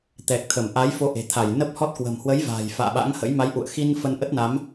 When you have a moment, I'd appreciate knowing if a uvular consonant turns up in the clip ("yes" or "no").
no